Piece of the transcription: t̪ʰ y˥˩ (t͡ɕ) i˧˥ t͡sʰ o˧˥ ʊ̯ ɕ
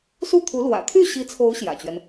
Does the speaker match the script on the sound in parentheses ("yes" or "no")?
no